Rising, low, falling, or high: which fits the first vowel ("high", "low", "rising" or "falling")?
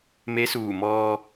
rising